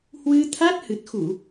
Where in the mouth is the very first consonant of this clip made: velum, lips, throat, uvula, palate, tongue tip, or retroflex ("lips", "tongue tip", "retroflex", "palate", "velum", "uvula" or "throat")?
throat